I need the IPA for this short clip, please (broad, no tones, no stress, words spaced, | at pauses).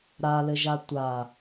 ɾalɘʒa tʷa